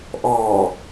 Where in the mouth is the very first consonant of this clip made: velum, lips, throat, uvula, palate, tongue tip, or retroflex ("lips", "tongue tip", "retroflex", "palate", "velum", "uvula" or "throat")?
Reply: throat